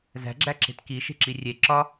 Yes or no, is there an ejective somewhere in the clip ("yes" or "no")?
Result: no